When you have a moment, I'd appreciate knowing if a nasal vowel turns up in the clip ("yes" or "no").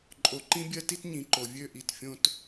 yes